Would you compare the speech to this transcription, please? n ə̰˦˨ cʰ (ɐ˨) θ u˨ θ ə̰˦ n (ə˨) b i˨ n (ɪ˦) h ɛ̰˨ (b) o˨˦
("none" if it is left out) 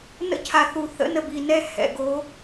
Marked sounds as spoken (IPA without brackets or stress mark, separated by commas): a˨, ə˨, ɛ˦, ɡ